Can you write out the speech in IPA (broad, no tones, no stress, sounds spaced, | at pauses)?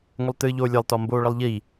ŋʷ ə lˠ t ɨː ʎ oː lʲ ɜ lˠ t ɒ m b oː ɭ ə lˠ ʎ i